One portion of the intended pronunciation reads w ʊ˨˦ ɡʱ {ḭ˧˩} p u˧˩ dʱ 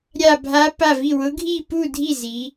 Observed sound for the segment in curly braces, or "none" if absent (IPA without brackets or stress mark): i˧˩